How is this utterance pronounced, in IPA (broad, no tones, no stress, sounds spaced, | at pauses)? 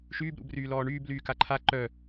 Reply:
ʃ yː b ɾ ṵ b r yː l ɔː ɳ yː b l yː k a ǃʰ a ǃ œ